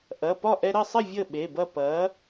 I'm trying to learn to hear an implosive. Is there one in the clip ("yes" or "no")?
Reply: yes